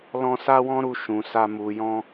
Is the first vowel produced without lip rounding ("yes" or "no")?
no